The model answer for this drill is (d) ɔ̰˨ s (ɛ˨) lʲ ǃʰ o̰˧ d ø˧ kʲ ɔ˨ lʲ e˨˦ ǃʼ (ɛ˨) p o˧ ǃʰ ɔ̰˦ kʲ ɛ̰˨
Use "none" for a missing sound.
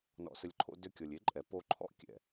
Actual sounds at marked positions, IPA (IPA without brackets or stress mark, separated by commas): n, ə˨, ɛ˨